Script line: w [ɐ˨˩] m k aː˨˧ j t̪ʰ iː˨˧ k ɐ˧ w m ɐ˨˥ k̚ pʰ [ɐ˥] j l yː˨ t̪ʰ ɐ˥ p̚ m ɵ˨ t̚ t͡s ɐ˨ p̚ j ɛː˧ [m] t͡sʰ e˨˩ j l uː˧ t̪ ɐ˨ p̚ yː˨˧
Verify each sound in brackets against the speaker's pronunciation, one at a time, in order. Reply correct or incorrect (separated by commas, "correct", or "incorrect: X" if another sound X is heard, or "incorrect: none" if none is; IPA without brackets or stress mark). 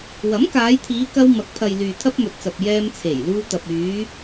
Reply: incorrect: ɐ˨˥, incorrect: ɐ˨, correct